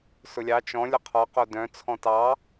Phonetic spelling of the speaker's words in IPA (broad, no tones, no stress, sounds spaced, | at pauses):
s ʊ lʲ ɑ t͡ʃ ɔ̃ lʲ ʊ qʰ ɔ q o d œ̃ t͡sʰ ɔ̃ t ɑ